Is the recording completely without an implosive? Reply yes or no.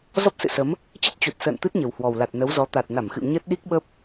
no